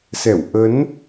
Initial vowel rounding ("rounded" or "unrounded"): unrounded